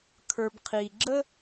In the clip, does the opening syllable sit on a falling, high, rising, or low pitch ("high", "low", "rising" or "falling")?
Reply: low